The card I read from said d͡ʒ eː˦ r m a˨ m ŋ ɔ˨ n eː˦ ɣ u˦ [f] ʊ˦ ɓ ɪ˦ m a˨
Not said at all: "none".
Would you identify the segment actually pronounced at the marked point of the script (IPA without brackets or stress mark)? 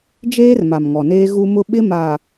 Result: m